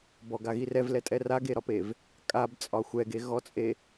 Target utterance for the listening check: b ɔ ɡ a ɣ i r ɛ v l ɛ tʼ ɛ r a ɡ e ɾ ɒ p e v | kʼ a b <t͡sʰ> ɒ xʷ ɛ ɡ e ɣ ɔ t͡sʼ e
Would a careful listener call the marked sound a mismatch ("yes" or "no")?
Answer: yes